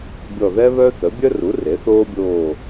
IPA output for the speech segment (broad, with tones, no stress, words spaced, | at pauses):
bʲɔ˦˨ ðɛ˥βœ˥θə˩˥ bʲœ˥ru˩˥ re˩˥θoː˥bʲoː˦˨